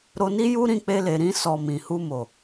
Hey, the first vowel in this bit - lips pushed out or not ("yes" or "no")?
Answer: yes